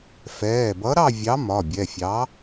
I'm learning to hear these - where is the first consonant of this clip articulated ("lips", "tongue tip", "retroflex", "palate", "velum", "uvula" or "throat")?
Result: lips